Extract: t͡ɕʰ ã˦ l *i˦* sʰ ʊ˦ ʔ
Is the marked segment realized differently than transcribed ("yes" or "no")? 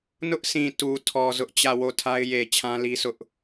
no